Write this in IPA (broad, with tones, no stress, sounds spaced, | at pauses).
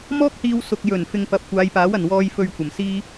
m ɔː˥ k̚ h iː˧ w s ʊ˨ k̚ j ɵ˨˩ n f ɪ˧ ŋ p ɐ˨ p̚ kʷ aː˨˧ j p aː˨˥ w ɐ˨˩ n w ɔː˧ j f ɵ˨ ɥ kʷ ɐ˨˩ m s iː˥